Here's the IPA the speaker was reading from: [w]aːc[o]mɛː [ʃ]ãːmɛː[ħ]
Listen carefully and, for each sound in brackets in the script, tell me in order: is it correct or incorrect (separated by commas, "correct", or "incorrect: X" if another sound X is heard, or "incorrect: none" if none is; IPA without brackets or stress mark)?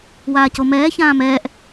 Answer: correct, correct, incorrect: ç, incorrect: ʔ